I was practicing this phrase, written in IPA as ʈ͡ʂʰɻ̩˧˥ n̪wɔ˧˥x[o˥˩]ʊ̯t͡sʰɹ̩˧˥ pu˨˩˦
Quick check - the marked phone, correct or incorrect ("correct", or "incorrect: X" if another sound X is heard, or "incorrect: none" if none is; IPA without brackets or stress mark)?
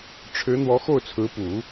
correct